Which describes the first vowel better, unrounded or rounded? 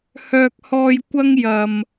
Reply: rounded